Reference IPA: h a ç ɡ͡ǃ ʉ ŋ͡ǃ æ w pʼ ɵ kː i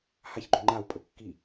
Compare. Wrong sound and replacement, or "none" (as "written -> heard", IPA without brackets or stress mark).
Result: æ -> a